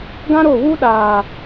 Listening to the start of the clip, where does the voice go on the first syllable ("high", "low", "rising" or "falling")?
high